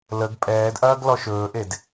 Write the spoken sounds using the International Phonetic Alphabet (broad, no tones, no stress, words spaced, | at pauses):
ləɡ pʼɛːdʔɐːɡ lɔʃɵːʔed